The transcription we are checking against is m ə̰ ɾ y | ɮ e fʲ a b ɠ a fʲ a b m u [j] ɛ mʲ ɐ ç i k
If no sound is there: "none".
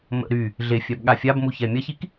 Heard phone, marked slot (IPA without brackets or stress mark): ç